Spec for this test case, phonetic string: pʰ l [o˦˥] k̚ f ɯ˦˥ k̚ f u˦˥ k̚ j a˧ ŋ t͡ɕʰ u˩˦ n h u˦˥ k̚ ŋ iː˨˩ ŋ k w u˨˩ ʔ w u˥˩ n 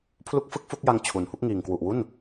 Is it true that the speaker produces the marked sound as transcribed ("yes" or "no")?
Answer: no